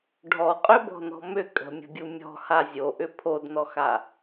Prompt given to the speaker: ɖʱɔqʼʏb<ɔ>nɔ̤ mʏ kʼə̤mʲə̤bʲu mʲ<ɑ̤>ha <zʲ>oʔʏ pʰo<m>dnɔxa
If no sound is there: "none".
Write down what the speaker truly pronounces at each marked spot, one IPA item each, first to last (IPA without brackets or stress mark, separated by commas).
ɔ̤, ɔ̤, zʲ, none